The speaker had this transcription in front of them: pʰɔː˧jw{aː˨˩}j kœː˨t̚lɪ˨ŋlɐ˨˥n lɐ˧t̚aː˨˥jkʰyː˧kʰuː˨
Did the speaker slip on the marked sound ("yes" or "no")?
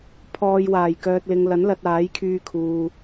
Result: no